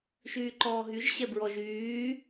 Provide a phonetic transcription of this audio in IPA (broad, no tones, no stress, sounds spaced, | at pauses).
ʃ yː ǃ ɔː ɦ y ʒ ɕ ɛ b ɹ ɔ ʒ yː